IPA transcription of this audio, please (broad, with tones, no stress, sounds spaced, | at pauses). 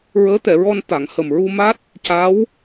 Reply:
ɹ əː˧˥ t̪ ɛ˨˩˨ ɹ ɔ˧ n t̪ a˨˩˨ ŋ h ə˨˩ m ɹ u˧ m a˦˥ t̚ | c a˧˥ w